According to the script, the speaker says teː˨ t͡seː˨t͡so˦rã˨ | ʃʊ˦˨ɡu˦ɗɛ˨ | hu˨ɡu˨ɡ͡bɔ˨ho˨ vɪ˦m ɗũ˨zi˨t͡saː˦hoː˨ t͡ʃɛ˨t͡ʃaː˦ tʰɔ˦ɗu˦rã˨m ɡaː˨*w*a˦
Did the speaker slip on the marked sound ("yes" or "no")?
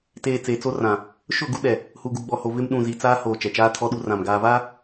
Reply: yes